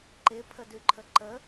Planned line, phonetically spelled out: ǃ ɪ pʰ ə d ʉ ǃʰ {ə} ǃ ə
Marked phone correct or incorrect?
correct